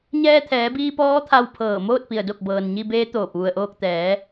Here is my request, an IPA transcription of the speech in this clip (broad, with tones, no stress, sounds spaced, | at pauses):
ɲ ɛː˧ t̪ʰ ɛː˩˧ b iː˧ p ɔː˧˥ t̪ʰ a˧ w pʰ ɤː˧˩ m oː˥˨ t̚ p i˩ ə̯ d o˧˩ k̚ b ɤː˩ n ɲ i˧ b eː˧˥ t̪ oː˧˩ p̚ ʋ u˩ ə̯ ʔ oː˧ k̚ t̪ ɛː˩˧